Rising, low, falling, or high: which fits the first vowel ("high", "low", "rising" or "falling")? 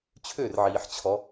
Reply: falling